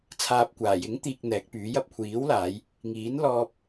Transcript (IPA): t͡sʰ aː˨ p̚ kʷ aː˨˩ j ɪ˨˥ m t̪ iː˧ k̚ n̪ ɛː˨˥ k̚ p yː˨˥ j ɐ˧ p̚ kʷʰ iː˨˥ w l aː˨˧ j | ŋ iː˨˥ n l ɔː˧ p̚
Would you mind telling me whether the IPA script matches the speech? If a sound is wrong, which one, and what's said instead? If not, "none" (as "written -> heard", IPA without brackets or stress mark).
m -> ŋ